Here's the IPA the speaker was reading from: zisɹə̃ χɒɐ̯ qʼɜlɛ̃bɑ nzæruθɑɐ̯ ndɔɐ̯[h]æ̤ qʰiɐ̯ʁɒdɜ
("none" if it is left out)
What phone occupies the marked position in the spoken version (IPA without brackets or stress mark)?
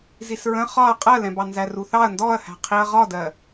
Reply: h